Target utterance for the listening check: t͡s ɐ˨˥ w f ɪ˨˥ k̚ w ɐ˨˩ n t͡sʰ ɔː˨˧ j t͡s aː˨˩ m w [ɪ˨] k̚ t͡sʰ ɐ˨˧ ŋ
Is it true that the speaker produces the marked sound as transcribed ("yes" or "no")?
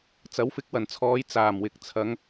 yes